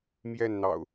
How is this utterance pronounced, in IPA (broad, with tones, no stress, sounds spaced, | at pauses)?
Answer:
m j ɛ˥˨ n n̪ ɑ̰˨˩ ʊ̯